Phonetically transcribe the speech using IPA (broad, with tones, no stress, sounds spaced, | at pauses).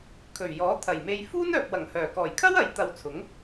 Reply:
kʰ ɵ˨˩ ɥ j ɔː˨˥ t̪ʰ ɐ˨˩ j m e˧ j f uː˥ n œː˨ p̚ w ɐ˨˩ ŋ h œː˨˩ k ɔː˨˩ j kʰ ɐ˥ w ɐ˨˥ j t̪ ɐ˧ w t͡sʰ ʊ˨˥ ŋ